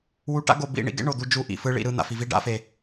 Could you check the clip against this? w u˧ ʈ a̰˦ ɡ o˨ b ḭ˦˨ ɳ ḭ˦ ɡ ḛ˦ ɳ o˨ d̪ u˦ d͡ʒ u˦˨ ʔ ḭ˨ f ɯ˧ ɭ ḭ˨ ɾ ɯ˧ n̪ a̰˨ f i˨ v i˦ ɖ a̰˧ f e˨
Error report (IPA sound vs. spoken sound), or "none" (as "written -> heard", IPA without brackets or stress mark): none